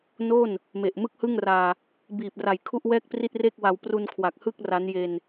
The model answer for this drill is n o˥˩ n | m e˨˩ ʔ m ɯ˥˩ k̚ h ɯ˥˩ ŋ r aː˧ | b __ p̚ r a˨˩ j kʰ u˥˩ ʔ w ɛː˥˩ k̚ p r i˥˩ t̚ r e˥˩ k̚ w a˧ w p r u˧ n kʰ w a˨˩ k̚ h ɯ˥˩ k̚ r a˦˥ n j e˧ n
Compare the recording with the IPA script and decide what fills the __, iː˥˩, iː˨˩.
iː˨˩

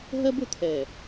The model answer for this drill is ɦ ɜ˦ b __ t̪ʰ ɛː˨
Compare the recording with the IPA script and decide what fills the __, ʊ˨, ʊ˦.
ʊ˨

